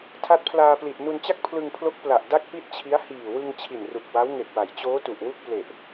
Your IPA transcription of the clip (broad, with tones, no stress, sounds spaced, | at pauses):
tʰ a˦˥ t̚ pʰ l aː˧ p l i˨˩ t̚ n u˧ n t͡ɕ a˥˩ k̚ pʰ l ɯ˧ ŋ pʰ l o˦˥ k̚ p l a˨˩ ʔ d a˥˩ k̚ p i˥˩ t̚ t͡ɕʰ i˦˥ a̯ h iː˨˩ w ɯ˧ ŋ t͡ɕʰ i˨˩ n r u˨˩ k̚ w a˦˥ w ŋ e˨˩ k̚ w a˩˦ j t͡ɕ oː˦˥ t u˨˩ ʔ w u˥˩ k̚ p l e˨˩ ʔ